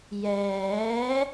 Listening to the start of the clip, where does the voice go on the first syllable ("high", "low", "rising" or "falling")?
rising